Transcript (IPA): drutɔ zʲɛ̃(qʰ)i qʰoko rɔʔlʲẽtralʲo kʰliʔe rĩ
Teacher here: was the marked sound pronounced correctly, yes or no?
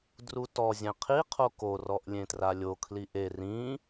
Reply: yes